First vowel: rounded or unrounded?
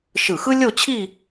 unrounded